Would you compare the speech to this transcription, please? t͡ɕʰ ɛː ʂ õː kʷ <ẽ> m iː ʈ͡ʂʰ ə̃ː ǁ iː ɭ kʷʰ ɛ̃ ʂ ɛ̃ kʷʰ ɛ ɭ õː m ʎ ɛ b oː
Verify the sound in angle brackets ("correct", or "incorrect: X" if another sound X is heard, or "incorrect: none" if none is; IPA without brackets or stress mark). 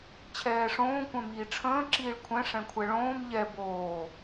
incorrect: ɛ̃